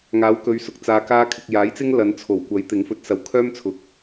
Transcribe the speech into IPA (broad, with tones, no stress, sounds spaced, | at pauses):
ŋ aː˨˥ w k ɵ˨˧ ɥ s ʊ˨˥ k̚ t͡s aː˧ k aː˥ kʰ ɪ˧ k̚ j aː˨˥ j t͡s ɪ˥ ŋ l ɐ˨˧ n t͡sʰ o˨˩ w kʷ ɐ˨˥ j t̪ ɪ˨˥ ŋ f ɵ˧ t̚ s ɐ˨ w kʰ œː˥ m t͡sʰ ʊ˨ k̚